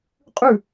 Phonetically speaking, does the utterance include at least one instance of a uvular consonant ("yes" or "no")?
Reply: yes